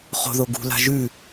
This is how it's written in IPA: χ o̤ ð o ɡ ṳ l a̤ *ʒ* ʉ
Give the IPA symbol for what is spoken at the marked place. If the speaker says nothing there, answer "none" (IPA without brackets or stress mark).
ʒ